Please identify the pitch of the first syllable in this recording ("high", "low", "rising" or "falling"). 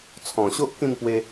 low